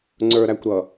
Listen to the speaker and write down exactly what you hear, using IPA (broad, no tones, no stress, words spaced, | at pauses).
ŋ͡ǀə˞ ɾækʷɾʌ